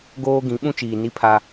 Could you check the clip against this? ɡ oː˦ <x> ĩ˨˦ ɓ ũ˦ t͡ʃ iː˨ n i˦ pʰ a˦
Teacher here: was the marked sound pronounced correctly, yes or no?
no